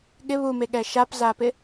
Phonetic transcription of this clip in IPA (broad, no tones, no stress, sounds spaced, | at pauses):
ɠ ɪ β u m e ɠ ɛ ʃ a p z a p ɪ